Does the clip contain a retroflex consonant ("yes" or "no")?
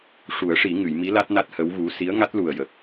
yes